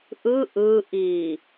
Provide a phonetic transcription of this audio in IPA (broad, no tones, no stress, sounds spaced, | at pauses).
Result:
ʔ ɯ ʔ ɯ ʔ i